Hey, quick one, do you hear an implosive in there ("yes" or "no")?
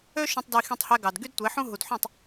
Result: no